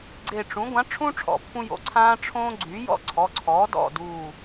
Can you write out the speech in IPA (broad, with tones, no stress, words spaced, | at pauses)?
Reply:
ɡ͡ǀe˧˩ʈ͡ʂũ˩˥ ɡʷã˩˥ʈ͡ʂʰũ˦ ʈ͡ʂʰɔ̰˩˥pːũ˦jo̰˩˥ ǀʰãː˦ʈ͡ʂʰõː˦ ɡ͡ǀy˩˥jɔ̰˦ǀʰɔ˩˧˩ǀʰɔː˩˥ dɔ̰˧˩duː˧˩